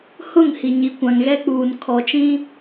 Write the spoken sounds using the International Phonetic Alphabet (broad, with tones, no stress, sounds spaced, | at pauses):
h ʊ˦˨ ŋ h i˨ ɲ i˨ kʷ ã˨ ŋ ɣ ɛ˦ k͡p uː˨ n kʰ ɔ˨ t͡ʃ ĩ˦